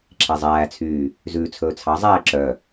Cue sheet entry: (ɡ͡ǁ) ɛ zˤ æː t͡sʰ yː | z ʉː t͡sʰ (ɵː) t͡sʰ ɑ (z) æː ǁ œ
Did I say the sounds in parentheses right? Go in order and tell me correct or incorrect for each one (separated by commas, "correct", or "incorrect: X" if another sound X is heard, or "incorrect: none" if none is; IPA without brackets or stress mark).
incorrect: ǁʰ, correct, incorrect: zˤ